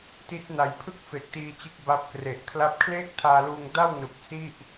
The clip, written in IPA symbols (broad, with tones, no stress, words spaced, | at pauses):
ti˦˥t̚na˨˩j pʰɯ˥˩k̚ fe˨˩k̚tiː˧t͡ɕɯ˦˥k̚ ba˦˥p̚kre˨˩ʔkʰla˥˩p̚ kʰleː˥˩k̚tʰaː˧luː˧ŋ da˥˩w nu˨˩k̚ si˥˩ʔ